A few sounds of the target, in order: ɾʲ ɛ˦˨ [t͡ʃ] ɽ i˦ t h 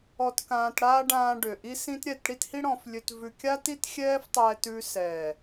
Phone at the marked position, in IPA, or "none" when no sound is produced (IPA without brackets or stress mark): t